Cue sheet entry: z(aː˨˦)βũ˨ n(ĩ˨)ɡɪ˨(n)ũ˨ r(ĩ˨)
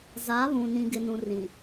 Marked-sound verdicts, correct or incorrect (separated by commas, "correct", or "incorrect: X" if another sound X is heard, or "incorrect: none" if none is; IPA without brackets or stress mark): correct, correct, correct, correct